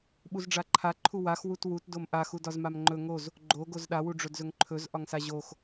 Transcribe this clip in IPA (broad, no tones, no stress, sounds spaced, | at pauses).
ɓ u z ɖ͡ʐ a ǃʰ a ǃʰ u w a x w u t w u t d o m ʔ a x u d ɒ z m a m ŋ͡ǃ ɵ ŋ o z | ɡ͡ǃ o ɡ o z ɗ a w u ɖ͡ʐ ɵ d z ɵ ŋ ǃʰ ɵ z ʔ ɒ ŋ s a ʑ o x